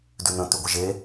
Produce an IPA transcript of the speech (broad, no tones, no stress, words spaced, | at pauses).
dʉn̪ə̃ t̪ʉɡʷəʒe